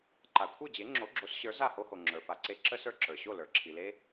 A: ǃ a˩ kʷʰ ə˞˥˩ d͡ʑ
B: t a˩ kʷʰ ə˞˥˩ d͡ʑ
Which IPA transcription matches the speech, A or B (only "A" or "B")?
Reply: A